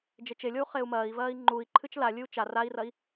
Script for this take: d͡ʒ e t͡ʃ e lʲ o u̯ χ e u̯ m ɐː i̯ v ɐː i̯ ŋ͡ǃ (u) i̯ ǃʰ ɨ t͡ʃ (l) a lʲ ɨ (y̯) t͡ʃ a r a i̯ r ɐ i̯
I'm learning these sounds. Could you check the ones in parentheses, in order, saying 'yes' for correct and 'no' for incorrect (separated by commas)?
yes, yes, no